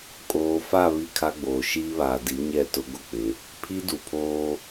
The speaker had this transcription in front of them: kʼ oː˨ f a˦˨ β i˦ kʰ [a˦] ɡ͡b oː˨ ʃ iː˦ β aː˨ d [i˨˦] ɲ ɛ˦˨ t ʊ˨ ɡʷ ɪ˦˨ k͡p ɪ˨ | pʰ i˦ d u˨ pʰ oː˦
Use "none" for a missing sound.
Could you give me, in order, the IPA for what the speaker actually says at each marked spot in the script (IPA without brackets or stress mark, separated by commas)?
a˦, i˨˦